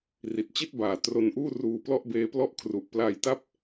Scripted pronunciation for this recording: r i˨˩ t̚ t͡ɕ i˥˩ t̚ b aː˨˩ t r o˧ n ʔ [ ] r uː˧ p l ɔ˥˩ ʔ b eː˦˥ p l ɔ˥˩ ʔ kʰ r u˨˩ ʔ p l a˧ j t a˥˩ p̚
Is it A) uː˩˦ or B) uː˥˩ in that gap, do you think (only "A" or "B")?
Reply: B